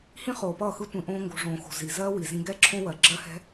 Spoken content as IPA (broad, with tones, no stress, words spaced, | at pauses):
hĩ˦χoː˨pʌː˦˨xɯ˦ tʷĩ˧ʔõː˦ŋɡo̤˧ ʐõː˨xo̤˨ zi˨ zɜː˦wi˨zĩ˧ ɡɛ˦ǁʰõ˦wɜ˨ ɡ͡ǁɜ˦hɛ̤˦